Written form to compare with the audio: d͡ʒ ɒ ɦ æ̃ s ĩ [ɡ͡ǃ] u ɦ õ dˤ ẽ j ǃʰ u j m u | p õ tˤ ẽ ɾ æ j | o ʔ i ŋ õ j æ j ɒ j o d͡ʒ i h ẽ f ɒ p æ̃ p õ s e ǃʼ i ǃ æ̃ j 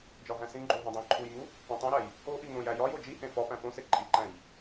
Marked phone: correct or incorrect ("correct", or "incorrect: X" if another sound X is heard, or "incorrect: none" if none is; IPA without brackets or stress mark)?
correct